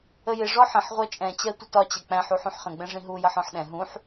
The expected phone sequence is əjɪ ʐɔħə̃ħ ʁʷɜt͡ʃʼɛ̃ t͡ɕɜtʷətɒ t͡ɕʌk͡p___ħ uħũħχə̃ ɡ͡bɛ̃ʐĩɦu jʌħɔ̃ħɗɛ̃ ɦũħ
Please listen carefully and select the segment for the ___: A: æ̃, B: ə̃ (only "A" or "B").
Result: A